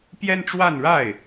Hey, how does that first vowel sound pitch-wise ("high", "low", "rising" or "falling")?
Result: high